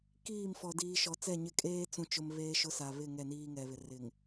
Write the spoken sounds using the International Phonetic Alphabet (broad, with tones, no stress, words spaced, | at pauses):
kiː˦˨mfɔ˨ diː˨ʃɔ˨t͡sɛ˦˨ɲɪ˦˨ kʼeː˦t͡sũ˨t͡ʃʊ˨m βeː˦ʃʊ˦sa˨ βɪ˦˨ ŋɛ˦˨niː˦ŋɛ˨βɪ˨ rɪ˨ŋ